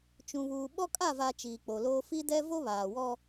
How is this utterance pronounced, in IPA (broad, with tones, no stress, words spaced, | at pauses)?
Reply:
t͡ʃũ˨βuː˨ ɓɔ˦kʼa˦˨va˨ t͡ʃiː˨k͡po˨loː˦ fi˦dɛ˦ vo˦βaː˨wɔ˦